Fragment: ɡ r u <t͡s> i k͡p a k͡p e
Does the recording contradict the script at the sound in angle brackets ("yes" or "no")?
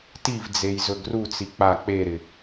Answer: no